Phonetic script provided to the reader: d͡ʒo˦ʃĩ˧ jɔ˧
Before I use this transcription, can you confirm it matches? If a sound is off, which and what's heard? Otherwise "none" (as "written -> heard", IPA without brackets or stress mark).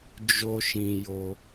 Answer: ɔ˧ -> o˧